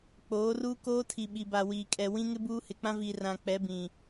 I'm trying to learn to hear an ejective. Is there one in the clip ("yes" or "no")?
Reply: yes